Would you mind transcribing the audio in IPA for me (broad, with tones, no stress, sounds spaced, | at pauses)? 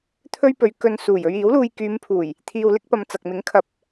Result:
t̪ʰ ɵ˥ ɥ p ɵ˨˧ ɥ k ɵ˧ n s uː˨˩ j ɵ˧ ɥ iː˨˥ w l uː˧ j k yː˨˧ m pʰ uː˨˩ j | t̪ʰ iː˧ w l ɪ˥ k̚ p ɐ˧ m t͡s ɐ˨ k̚ m ɪ˨˥ ŋ kʰ ɐ˨˥ p̚